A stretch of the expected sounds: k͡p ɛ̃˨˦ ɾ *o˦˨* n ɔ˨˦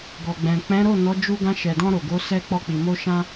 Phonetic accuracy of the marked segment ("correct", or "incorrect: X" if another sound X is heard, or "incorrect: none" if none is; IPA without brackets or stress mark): correct